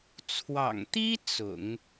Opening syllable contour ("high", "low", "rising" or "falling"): low